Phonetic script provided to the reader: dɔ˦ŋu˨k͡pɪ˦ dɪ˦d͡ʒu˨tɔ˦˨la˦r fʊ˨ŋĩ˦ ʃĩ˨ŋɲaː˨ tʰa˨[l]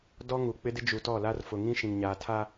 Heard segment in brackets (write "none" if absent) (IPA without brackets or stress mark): none